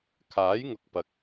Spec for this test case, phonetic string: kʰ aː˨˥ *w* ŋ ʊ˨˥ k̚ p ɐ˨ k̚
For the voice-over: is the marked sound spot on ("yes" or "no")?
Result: no